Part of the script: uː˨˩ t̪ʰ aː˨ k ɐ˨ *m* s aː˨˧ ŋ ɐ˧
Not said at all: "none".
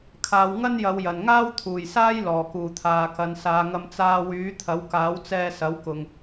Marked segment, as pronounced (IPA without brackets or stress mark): n